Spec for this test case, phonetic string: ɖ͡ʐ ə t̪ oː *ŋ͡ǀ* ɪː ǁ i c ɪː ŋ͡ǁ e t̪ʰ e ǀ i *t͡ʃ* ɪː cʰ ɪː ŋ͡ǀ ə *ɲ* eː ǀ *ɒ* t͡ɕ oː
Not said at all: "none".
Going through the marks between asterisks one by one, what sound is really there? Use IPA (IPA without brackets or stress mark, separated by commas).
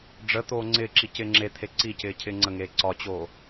ŋ͡ǀ, c, ŋ, ɒ